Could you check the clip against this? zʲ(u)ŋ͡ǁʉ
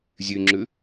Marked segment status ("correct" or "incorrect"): incorrect